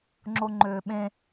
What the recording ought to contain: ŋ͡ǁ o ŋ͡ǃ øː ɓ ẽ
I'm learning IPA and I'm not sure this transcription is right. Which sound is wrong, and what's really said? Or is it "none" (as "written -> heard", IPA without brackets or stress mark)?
none